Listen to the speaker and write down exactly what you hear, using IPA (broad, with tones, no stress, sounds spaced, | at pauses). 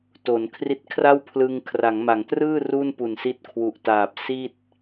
t o˩˦ n kʰ r i˦˥ t̚ kʰ r a˥˩ w pʰ l ɯ˧ ŋ kʰ r a˩˦ ŋ m a˩˦ ŋ t r ɯː˥˩ r u˥˩ n p u˨˩ n s i˦˥ t̚ kʰ w u˨˩ ʔ t aː˨˩ p̚ s i˥˩ t̚